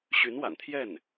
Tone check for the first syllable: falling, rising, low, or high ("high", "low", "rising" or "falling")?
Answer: rising